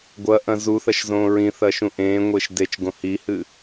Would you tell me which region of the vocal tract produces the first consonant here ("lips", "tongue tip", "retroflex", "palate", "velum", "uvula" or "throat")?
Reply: velum